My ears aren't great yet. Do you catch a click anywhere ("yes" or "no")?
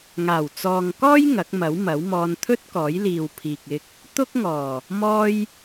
no